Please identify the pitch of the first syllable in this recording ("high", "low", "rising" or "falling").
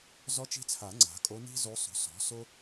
rising